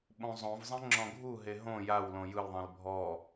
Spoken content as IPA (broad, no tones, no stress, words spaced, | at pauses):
ɓõzˤõvzˤẽ ŋ͡ǁɔ̃ɡʱuɦe ɦõ jawlõ jɯlðˤẽl bʱɔ